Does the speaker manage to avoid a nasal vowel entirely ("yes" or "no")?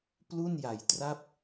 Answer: yes